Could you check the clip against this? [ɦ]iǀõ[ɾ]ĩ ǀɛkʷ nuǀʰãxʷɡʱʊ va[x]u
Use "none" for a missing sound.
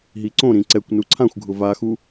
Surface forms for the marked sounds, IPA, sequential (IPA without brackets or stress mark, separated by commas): ɦ, ɾ, x